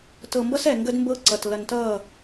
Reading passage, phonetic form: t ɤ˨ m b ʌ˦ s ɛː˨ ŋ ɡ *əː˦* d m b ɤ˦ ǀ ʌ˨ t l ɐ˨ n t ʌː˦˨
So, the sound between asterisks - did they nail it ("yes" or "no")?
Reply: no